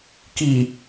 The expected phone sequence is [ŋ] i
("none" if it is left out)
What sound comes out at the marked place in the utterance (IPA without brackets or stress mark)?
k